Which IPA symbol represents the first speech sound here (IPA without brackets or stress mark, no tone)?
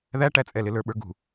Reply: ð